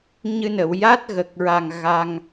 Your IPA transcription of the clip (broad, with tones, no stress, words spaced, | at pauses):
ɲɨ˧nə˨˩˨w ja˦˥t̚ɣə˨˩k̚ɹa˨˩ŋ ɣa˧ŋ